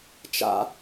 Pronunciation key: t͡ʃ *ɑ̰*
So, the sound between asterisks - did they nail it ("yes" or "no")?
no